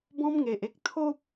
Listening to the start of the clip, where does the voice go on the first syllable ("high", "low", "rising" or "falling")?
high